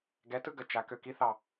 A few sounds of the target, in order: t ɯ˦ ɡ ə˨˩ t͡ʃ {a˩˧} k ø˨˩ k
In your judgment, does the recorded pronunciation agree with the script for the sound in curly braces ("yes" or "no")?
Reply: yes